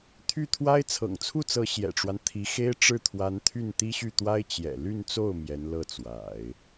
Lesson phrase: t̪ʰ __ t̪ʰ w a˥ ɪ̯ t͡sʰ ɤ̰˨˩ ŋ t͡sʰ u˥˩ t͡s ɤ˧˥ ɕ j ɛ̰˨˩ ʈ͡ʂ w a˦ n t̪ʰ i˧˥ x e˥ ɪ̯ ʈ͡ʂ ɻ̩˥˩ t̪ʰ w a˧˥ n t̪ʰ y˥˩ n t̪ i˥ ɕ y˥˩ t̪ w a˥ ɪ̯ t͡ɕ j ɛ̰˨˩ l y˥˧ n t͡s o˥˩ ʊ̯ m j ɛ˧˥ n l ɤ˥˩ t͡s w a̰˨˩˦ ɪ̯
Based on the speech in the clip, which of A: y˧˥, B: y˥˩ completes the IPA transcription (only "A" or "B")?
B